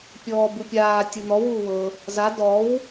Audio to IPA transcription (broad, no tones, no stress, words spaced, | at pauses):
pʲɔːbɯpʲaː tʲɯn̪ɔ wuːwɤ | za dɔw